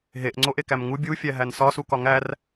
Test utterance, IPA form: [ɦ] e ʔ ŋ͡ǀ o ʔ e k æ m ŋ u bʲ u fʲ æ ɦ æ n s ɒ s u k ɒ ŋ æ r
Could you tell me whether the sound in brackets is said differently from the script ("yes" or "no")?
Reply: no